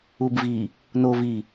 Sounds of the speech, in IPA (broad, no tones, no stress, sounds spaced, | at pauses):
u b v i | n o v i